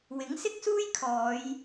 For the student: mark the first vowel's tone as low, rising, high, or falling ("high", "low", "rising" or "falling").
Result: rising